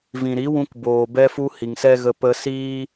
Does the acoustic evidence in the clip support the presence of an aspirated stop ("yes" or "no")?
no